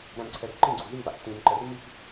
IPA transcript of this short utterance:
ɾ æ̃ m ǀʰ ɛ r ǃ ĩ ɡ͡ǀ u z i z ɑ̰ k t ĩ m ǃ ə r m i k

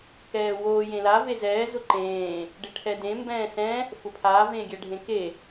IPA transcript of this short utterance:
k ɛː w oː j ẽ l a v e z ɛː z ʊ ǃ ẽː | ɖ ɪ ʈʰ ɛ d ẽ m b ɛ̃ː s ɛ̃ | f ʊ pʰ aː v ẽː ɡʲ ɛ ɖʱ ẽ k e

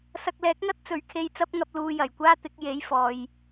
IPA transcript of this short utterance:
s ɐ˧ k̚ l ɛː˨˥ k̚ ŋ ɐ˥ t̚ t͡s ɵ˨˥ ɥ kʰ e˧ j t͡s ɐ˥ p̚ ŋ ɐ˧ p̚ l uː˧ j ɐ˨˩ j kʷ aː˥ t̪ ɪ˨˥ k̚ j e˨˥ j f ɔː˨ j

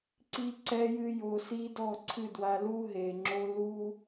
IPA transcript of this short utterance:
ǀ i˦ ǀ ɛ˦ j ɨ˦ j o˧ s i˦ d ɔ˦˨ ǀʰ ɨ˦˨ d w a˧ l u˦ ɦ e˨ ŋ͡ǁ o˦ l u˦

